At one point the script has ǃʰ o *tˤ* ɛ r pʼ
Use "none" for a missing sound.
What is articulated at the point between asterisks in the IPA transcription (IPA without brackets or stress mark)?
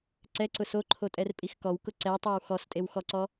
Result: tʼ